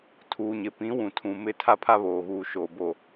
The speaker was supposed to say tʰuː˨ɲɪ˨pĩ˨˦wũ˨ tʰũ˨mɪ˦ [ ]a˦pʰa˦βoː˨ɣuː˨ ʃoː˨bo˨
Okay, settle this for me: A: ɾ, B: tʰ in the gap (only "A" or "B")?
B